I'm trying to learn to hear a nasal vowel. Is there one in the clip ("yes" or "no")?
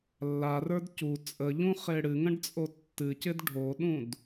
yes